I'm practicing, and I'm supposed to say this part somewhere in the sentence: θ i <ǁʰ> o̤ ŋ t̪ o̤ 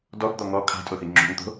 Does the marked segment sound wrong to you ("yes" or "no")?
yes